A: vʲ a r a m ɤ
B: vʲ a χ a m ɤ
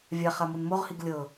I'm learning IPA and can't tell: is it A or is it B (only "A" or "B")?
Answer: B